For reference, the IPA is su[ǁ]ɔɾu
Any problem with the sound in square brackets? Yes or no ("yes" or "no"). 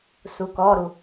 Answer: yes